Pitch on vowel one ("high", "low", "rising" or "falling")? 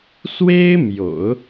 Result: high